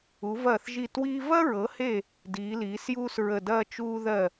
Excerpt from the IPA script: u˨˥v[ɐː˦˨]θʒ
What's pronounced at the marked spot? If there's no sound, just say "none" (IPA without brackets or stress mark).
ɐː˦˨